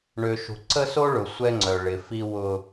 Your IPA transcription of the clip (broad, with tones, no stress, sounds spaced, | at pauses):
ɳ ø˨ ʃ ṳ˨ ǀ ə˦ s o˦ ɭ ʊ˨ sʷ ɛ˦ ŋ͡ǀ œ˨ ɭ ɪ˨ f i˦ w ʊ˦